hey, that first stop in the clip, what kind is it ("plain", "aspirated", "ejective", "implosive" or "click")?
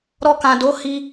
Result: plain